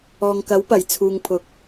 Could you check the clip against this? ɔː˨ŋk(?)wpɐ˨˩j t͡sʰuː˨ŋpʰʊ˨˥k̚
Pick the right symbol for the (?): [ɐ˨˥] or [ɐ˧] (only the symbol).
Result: ɐ˨˥